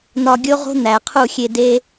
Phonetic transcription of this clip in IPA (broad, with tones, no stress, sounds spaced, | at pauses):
n̪ ɒ˧ ɡʲ o˦ ʁ o̤˦ n̪ æ˨ qʰ u˦˨ xʲ e˧ d e˦